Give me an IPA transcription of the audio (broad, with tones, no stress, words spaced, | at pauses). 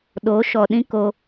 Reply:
ɗo˨˦ʃɔ˨ɗĩ˦ko˧